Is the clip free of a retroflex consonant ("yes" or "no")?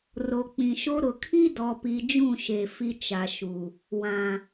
yes